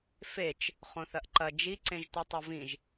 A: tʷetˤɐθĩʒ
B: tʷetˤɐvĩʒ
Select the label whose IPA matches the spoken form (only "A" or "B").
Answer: B